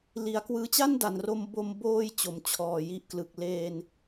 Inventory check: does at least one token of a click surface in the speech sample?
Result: no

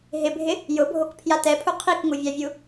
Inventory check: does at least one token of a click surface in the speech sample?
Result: no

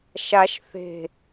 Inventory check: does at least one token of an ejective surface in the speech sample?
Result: no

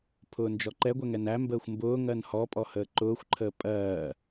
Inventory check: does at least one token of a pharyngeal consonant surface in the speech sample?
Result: no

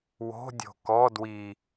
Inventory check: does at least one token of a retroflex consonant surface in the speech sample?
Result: no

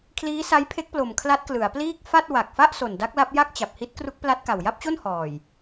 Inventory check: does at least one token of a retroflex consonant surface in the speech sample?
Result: no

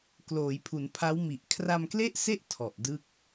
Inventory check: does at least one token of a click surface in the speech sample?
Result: no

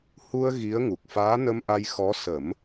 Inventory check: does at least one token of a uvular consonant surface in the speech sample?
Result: no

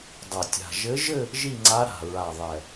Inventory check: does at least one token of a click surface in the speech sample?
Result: yes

